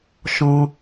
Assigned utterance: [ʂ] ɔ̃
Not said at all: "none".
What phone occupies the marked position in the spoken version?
ʃ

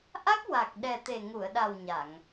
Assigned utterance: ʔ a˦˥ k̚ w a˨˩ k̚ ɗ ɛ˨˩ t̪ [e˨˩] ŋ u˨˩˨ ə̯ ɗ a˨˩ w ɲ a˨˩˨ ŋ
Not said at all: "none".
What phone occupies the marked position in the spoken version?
e˨˩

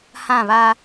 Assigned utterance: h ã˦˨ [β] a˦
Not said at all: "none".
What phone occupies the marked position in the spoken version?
β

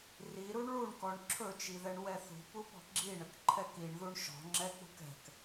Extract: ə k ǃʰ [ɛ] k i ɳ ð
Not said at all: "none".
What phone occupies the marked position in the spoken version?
ɛ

